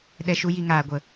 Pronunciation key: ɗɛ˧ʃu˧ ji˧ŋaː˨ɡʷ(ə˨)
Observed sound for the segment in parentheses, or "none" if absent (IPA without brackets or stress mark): ə˨